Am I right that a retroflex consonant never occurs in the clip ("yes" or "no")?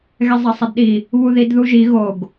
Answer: yes